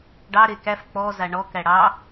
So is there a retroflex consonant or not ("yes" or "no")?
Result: yes